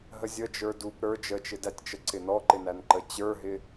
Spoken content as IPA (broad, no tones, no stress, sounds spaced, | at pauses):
ɦ ə zʲ ə d͡ʒ ə˞ d u p ɾ ə˞ d͡ʒ ə t͡ʃ ɪ d æ tʲ t͡ʃ ə ǀ ɪ n ɔ ǃ ɪ n æ n ǃ ə t͡ɕ ə˞ ɦ ɪ